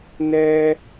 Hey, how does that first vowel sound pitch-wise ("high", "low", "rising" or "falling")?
high